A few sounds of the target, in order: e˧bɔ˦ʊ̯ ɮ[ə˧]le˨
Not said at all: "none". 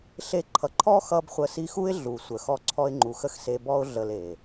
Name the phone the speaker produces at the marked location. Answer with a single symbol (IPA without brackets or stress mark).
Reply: ə˧